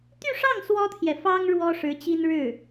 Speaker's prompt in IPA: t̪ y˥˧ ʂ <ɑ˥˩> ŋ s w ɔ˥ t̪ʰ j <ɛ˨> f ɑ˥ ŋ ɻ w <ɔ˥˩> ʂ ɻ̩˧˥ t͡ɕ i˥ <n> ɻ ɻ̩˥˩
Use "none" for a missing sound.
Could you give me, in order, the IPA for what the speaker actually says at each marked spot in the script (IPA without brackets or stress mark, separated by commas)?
ɑ˥˩, ɛ˨, ɔ˥, n